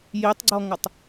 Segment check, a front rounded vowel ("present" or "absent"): absent